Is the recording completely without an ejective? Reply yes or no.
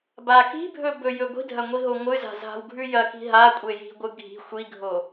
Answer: no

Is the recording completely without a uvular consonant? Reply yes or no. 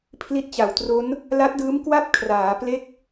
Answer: yes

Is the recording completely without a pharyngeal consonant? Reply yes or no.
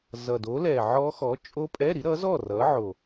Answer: no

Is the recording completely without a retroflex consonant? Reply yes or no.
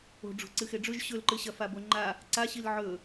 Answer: no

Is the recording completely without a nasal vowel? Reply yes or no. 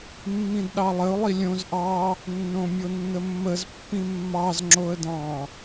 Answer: no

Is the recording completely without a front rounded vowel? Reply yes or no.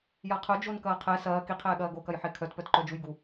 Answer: no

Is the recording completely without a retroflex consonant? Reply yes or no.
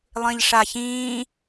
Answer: no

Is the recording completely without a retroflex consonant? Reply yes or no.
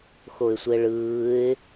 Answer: no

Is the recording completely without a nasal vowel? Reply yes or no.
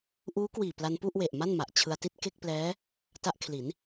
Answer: yes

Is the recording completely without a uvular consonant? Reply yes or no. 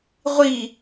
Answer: no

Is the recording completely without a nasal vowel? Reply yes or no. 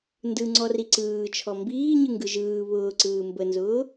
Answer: yes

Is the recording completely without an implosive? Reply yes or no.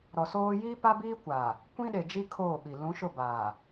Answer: no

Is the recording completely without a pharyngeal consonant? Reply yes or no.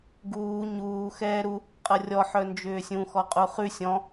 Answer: no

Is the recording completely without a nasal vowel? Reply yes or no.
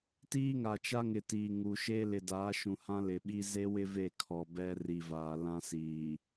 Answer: no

